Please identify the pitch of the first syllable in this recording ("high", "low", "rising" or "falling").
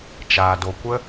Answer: low